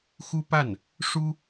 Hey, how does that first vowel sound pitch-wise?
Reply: high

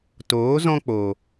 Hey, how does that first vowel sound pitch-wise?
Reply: rising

